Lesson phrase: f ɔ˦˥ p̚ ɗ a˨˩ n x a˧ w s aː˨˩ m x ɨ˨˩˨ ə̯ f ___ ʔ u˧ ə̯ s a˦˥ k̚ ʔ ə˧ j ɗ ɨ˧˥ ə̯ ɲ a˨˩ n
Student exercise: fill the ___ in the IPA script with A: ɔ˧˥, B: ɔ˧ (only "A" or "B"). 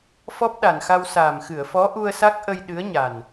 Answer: A